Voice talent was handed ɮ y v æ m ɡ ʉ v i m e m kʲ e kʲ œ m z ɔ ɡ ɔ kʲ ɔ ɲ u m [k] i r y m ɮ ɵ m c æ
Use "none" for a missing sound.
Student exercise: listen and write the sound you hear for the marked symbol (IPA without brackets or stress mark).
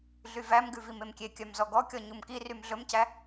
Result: k